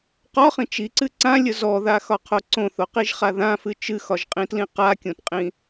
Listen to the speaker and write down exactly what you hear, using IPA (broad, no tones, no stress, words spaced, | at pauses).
qɒχĩ t͡ʃiǀɨ ǀãlʲə zɔðaxɒqʰo ǀõθoqiʒχa ðãfɨ t͡ʃɨxɒʒqʼĩtlĩ qakʲõtqʼĩ